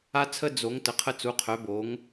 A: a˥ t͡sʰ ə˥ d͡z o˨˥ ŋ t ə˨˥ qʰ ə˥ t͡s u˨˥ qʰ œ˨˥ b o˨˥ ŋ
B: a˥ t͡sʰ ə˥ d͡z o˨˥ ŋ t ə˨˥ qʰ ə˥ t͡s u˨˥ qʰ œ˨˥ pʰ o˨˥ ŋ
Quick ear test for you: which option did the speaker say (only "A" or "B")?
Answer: A